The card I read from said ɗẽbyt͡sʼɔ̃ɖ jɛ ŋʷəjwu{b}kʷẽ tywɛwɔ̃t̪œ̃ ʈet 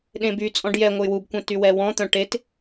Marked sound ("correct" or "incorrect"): correct